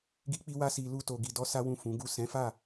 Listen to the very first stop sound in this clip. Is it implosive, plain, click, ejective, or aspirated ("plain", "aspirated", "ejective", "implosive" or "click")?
plain